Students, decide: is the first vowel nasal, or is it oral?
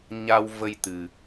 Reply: oral